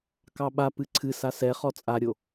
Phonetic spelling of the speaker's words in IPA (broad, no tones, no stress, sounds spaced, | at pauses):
k ɑ ɓ a p ɨ ǀʰ ɨ s a s ɛ χ ɔ t͡sʼ a ɾʲ o